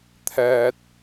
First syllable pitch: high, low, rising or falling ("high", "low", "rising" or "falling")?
high